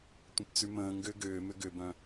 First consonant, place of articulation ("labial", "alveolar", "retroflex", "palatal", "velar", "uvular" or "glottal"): alveolar